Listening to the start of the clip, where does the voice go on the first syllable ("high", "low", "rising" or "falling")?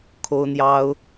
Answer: high